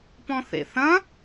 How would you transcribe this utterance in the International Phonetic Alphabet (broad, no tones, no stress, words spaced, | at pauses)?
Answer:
pɔ̃θḛθɐ̃